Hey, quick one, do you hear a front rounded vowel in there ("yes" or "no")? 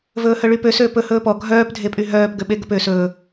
yes